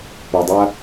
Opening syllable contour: low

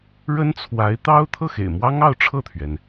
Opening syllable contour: high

